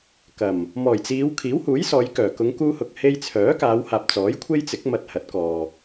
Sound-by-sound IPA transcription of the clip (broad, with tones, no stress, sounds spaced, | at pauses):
k ɐ˨˩ m | m ɔː˨˩ j t͡s iː˨˧ w kʰ iː˨˥ w h uː˨˥ j s ɔː˨˧ j k œː˨˩ k ʊ˨˧ ŋ k uː˧ h ʊ˨ k̚ h e˧ j t͡sʰ œː˨˥ k aː˨˧ w h aː˨ p̚ t͡s ɔː˨˥ j kʷʰ e˥ j t͡s ɪ˨˥ k̚ m ɐ˧ t̚ h ɐ˨˥ t̚ k ɔː˨